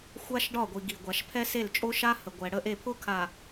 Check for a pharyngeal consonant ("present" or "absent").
absent